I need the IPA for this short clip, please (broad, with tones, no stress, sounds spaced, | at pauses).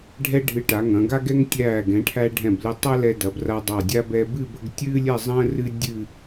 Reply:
ɖʱ ɛ˥ ɖʱ ɨ˧ ʈ a˩˧ ŋ ɐ̃˩˧ ɡ a˥ ɡ ɛ˥ ŋ tʲ æː˧˩ ɡ ɛ̃˩˧ ʈʰ æ˧ ɖʱ ɛ̃˧˩ b l ɨ˧ tˤ a˥ l ɛ˧ d ɐ˩˧ b r a˧ dˤ a˧˩ dʲ a˥ b ɛ˧ b ɨ˥˧ b ə˥˧ ɡ tʲ ɨː˥ lʲ ɛ˥˧ zˤ ə̃ː˥ r ɨ˥ dʲ ɨ˥˧